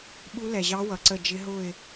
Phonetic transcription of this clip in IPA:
ɓ u˦˥ l ɛ˨ ʑ ɑ˦˥ w ʌ˨ ǀ ə˥˧ d͡ʒ ɪ˦˥ ɦ ʊ˥˧ ɪ̯

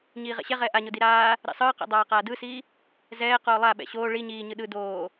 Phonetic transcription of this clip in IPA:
ɲ iː ʁ ɛ̰ ɕ ɛ ʁ ɛː ʔ a ɲ o d i ɾ aː | ɾ ḭ sˤ ɯː q ḭ dˤ aː q aː d ɯ s iː | z ɛː q oː lˠ a ɓ ɛ̰ ɕ oː ɭ i ɲ iː ɲ ɯ ɗ ɯ d oː

